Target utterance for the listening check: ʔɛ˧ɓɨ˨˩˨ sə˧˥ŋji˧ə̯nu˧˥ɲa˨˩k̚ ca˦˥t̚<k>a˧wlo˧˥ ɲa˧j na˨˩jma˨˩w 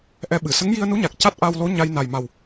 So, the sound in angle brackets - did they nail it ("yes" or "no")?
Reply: no